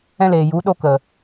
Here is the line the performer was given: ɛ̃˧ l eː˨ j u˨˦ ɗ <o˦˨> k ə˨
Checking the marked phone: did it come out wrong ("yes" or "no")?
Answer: yes